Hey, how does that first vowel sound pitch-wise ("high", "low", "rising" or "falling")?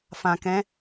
low